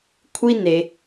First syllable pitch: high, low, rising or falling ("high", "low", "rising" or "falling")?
high